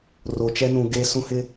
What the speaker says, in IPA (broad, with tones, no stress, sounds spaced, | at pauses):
r o˨ t͡ʃ ɛ˦ n ũ˨ ɡ e˦ s ũ˦ h ɪ˦